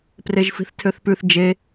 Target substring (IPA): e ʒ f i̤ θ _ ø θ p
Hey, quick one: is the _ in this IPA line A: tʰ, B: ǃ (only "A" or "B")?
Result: A